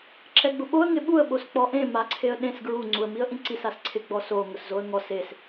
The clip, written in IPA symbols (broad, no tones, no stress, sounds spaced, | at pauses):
ǁ ɛ ɡ͡b ʊ ɓ o ə̯ ŋ ɪ ɓ u ə̯ ɓ o s k͡p ɔ ʔ ẽ m a ǀʰ e ə̯ ɗ ẽ s ɡ ɹ u ŋ͡ǀ u ə̯ m i ə̯ ʔ ĩ ǀ i s a s ǀʰ ɪ ɡ͡b ɔ s o ŋ ʊ s z o ə̯ ŋ ɔ s e s